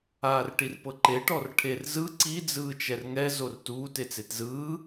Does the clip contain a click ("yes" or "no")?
yes